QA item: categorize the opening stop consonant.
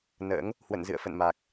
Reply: plain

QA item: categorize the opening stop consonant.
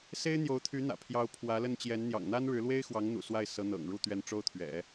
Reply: aspirated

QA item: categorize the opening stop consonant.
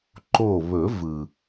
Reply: click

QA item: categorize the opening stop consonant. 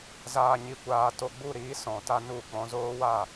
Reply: plain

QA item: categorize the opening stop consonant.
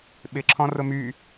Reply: implosive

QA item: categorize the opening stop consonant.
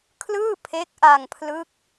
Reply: aspirated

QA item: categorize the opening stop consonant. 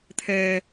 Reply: aspirated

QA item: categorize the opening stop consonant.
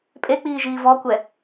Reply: ejective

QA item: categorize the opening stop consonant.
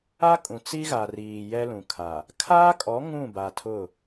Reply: ejective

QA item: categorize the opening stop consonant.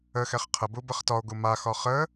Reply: aspirated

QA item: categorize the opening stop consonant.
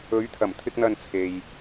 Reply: aspirated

